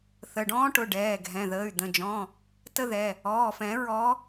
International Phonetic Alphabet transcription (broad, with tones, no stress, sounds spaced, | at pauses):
θ ə˩˧˩ ɖ ɔ̃ː˦ ʈ ʊ˩˧˩ ɖ ɛː˩˧˩ ɡʱ ɛ̃˩˧˩ ð əː˩˧˩ y̯ d̪ ə̃˩˧˩ d͡ʒ ɔ̃˩˧˩ | t ə˦ ð ɛ˩˧˩ | ɔː˩˧˩ f ɛ̃˨˩˦ ɹ ɔ˨˦